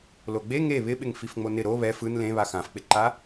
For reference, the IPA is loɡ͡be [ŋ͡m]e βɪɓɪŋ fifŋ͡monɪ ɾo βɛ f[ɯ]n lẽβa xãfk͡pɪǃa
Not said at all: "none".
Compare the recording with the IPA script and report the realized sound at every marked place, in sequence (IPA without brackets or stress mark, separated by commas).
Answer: ŋ, ɯ